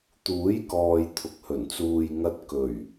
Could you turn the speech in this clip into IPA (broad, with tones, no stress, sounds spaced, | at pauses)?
t̪ uː˨˥ j k ɔː˨ j t̪ʰ ʊ˨ k̚ h ɵ˨˩ n t͡s uː˨ j ŋ ɐ˧ t̚ k ɵ˨˩ ɥ